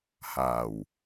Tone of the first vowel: low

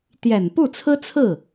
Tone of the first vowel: low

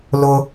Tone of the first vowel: high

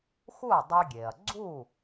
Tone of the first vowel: falling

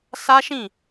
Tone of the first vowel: high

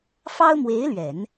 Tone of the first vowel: high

